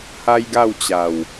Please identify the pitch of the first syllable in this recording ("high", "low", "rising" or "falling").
high